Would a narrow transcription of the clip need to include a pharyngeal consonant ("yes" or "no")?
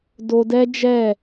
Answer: no